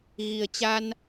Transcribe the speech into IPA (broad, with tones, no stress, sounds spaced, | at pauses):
ɣ i˨˩ ə̯ t͡ɕ a˧ n